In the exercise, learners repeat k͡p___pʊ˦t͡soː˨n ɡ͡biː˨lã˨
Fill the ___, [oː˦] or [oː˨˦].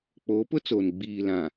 oː˨˦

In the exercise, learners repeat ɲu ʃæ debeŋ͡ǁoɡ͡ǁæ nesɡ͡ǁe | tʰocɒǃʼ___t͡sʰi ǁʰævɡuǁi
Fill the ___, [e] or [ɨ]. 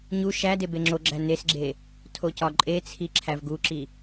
e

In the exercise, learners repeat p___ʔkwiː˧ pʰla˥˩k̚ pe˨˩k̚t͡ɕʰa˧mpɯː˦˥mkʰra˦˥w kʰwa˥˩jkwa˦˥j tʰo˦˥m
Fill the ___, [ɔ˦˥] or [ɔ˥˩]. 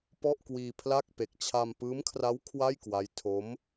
ɔ˥˩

